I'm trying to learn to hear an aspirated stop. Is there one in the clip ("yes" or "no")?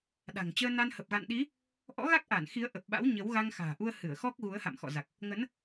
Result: no